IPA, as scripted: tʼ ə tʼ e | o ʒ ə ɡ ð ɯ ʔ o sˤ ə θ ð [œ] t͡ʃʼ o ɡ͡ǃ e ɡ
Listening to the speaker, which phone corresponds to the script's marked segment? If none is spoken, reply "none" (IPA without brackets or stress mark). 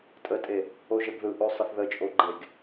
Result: ə